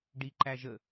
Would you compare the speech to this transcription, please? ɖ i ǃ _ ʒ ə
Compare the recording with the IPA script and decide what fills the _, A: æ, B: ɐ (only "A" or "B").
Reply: A